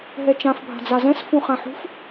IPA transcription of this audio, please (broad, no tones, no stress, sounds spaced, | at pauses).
ɦ ɛ t͡ʃ ã f bʱ a̤ d͡z a z ɛ̃ s f ũ χ ã ħ ṳ f